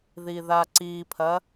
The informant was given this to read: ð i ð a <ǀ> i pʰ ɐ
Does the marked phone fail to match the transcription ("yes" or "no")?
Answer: no